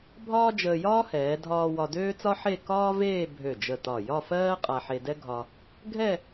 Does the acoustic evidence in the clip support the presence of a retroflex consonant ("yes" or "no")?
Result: no